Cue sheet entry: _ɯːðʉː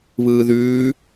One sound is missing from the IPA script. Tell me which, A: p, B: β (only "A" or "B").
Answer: B